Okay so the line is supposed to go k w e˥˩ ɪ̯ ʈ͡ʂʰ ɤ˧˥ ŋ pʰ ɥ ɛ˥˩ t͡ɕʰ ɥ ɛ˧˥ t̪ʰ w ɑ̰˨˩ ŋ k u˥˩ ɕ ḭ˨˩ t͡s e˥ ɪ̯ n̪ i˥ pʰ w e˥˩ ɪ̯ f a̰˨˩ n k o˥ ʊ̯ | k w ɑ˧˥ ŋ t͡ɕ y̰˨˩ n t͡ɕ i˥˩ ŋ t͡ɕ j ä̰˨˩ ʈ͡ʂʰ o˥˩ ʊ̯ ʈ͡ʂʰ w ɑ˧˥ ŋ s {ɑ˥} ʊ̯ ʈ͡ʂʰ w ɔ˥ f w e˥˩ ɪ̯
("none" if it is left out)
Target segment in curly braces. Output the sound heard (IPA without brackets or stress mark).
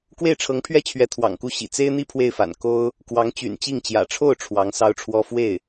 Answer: ɑ˥